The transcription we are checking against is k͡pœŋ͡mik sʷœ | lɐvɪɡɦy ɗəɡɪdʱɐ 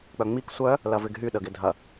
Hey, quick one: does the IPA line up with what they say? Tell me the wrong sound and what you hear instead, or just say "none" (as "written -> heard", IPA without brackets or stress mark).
none